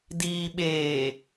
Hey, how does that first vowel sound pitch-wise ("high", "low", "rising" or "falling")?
low